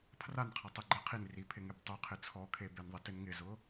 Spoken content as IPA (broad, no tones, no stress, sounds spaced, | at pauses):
pʰ r a n qʰ a tˤ i ɡ͡ǃ e qʰ i n r i pʰ ɪ ŋ e b tˤ u qʰ ɪ t͡sʰ ɔ kʰ e b e n ðˤ ɪ t ɪ n ŋ ɪ z ʊ